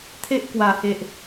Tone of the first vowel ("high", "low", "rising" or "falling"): high